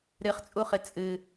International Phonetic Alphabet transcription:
ɾ ɨ χ t͡sʼ u χ ɨ t͡sʼ ɨ

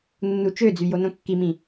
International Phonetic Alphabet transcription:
nː u t͡ʃ ø d͡z y j o n õ kː i m ĩ

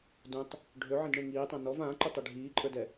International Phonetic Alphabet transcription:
d ũ tˤ | ɖʱ ø ʕ ĩ d ɳ ẽ ŋ iː tˤ ã n ɔ v ãː ǃ y tˤ ɛ ɖʱ iː ǃʼ ə˞ d ɛ

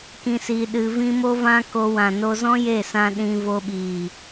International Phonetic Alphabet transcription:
k ĩ˧ s i˧ ɗ ɨ˧ v ĩ˦ m o˦ v ã˦ k o˧ w ã˨ n o˧ z ɔ̃˦ j e˦˨ s ã˧ ɗ ĩ˧ v o˧ ɓ iː˨

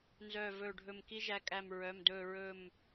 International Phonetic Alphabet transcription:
n z œː˧˩ v ɵː˧˩ ɖʱ ɵ˧˩ m k i˦ ʒ æ˧˩ kʼ æ˧˩ m ɹ œ˩˧˩ m d ɵː˧˩ ɹ ɵ˧˩ m

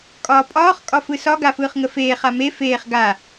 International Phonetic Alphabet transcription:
kʼ ɒː pʼ ɒː χ kʼ ɒ f ɯ s ɒ ɡ a f ɯː χ ŋ ə f eː χ a m e f eː χ ɡ a

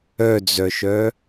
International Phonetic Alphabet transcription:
œ d͡z œ ʃ œ

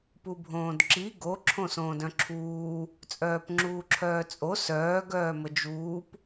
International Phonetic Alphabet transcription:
p u bʱ õː d ǁ i ɡ o ǁʰ õ s õː d œ̃ ǁʰ uː | t͡sʼ œː p ŋ͡ǁ uː ǁʰ œː t͡sʼ o s œː ɡ œː m ə d͡ʒ uː p

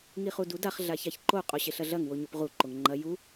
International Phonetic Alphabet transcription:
ŋ i χ u d u d a χ ɮ a ç a ç ǃ o qʼ o ɕ e ɬ ɐ ɮ ɐ ŋ w o ɲ o p ʁ u ǃ o ŋ ŋ͡ǃ ɐ j u

